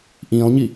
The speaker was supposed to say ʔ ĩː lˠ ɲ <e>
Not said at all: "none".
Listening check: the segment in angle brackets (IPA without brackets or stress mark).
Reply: i